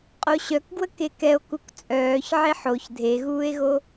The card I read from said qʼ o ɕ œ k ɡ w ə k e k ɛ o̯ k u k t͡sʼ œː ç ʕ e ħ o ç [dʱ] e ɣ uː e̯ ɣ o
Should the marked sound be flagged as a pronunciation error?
no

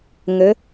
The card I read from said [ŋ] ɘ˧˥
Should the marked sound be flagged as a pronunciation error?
no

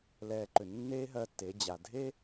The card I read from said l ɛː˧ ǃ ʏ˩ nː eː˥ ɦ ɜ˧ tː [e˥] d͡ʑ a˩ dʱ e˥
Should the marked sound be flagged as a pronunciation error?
yes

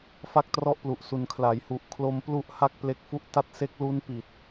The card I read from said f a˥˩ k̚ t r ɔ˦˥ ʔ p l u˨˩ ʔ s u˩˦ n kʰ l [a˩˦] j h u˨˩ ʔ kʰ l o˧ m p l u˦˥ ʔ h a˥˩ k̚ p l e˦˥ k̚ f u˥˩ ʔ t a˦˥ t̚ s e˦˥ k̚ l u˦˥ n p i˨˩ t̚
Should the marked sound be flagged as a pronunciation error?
no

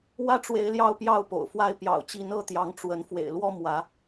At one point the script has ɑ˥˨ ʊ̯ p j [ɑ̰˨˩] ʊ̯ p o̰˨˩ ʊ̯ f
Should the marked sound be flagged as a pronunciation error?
yes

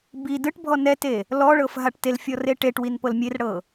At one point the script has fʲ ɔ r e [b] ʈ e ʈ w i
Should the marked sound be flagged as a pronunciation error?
yes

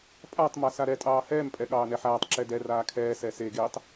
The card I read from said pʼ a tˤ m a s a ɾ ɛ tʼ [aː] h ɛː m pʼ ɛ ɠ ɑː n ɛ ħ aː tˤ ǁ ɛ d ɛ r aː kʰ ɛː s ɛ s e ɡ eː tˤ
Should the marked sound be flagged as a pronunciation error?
yes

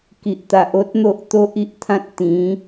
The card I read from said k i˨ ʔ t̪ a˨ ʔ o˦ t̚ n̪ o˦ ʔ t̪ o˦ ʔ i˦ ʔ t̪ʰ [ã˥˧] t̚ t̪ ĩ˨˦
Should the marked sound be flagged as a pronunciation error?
yes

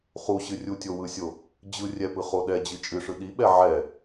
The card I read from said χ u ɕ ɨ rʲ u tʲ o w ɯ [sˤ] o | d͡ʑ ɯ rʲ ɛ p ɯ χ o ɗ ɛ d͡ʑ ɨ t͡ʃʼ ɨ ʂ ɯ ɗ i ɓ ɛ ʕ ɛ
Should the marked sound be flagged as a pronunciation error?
yes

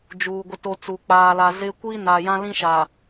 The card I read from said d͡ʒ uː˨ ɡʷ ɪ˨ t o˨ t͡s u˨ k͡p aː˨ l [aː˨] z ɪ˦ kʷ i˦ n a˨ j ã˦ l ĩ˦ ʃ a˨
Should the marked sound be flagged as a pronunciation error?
yes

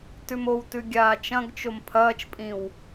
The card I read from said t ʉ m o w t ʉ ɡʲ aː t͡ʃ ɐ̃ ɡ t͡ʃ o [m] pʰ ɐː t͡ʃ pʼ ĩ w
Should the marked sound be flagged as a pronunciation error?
no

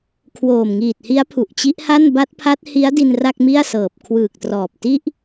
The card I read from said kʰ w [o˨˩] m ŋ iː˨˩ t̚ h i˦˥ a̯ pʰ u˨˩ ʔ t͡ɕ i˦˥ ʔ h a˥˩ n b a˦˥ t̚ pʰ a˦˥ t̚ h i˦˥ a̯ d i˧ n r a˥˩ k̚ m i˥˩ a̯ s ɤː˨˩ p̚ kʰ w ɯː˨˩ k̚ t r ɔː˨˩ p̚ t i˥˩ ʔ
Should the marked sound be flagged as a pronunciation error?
yes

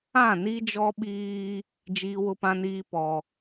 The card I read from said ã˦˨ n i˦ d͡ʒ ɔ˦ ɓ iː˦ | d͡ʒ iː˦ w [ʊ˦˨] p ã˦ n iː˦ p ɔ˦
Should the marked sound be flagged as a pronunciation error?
yes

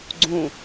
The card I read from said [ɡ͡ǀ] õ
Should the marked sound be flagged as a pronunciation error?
no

